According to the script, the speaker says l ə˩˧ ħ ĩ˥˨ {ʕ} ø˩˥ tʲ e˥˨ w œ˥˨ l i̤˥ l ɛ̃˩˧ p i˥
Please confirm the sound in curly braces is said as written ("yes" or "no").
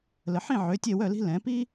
yes